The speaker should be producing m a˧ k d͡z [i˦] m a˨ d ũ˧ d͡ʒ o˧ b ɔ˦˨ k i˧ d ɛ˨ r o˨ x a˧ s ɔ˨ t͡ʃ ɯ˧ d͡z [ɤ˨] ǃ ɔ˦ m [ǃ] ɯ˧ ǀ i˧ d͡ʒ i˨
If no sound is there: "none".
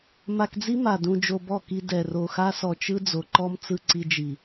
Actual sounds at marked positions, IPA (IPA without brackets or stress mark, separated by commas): i˦, o˨, t͡s